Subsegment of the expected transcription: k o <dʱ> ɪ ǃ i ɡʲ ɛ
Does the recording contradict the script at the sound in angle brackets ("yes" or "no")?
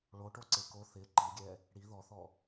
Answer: yes